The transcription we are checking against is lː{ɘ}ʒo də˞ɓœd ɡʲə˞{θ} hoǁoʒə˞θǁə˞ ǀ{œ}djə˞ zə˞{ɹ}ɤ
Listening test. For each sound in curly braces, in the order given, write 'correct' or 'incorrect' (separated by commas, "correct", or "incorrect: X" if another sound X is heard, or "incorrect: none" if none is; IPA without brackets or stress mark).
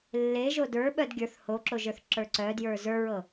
incorrect: e, correct, correct, correct